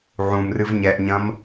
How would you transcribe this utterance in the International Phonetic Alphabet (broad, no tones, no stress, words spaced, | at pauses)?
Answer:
ʕũmrɨv ɲɛʔɲɐ̃m